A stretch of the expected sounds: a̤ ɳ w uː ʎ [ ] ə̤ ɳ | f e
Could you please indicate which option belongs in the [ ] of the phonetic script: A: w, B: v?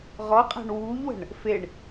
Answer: A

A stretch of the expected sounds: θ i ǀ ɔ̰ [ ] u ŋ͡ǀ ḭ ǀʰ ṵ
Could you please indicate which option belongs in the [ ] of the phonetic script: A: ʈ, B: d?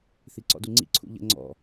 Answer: B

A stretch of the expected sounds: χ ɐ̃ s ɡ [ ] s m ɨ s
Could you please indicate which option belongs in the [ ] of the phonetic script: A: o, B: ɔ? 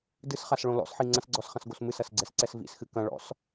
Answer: A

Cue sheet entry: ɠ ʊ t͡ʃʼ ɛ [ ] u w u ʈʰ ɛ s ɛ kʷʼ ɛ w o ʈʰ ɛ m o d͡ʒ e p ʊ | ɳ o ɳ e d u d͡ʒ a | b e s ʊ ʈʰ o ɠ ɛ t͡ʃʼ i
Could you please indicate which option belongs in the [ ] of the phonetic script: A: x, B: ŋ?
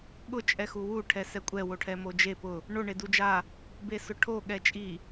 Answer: A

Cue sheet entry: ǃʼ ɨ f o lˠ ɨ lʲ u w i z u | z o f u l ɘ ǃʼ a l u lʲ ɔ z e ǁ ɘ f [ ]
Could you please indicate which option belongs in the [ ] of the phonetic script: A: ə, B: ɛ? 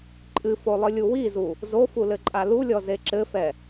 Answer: B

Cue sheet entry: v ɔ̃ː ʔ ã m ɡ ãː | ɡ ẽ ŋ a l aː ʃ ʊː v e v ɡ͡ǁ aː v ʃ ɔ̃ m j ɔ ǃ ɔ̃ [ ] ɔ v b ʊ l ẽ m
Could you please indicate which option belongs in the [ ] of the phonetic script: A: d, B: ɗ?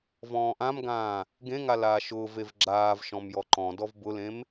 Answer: A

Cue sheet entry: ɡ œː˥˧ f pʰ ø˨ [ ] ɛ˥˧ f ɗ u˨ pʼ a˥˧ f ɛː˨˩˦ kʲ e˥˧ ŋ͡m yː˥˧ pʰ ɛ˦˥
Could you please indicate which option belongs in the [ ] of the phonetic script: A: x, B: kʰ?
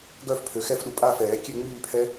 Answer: A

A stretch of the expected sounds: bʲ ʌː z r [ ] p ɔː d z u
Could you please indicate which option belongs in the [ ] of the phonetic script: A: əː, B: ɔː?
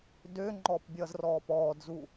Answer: B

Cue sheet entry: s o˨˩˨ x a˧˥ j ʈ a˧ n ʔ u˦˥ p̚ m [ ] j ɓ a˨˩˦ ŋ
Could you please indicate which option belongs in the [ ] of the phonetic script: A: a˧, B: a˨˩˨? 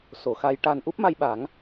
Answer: A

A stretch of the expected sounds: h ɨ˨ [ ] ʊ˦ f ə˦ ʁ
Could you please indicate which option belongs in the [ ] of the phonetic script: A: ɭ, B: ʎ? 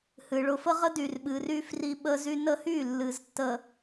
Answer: A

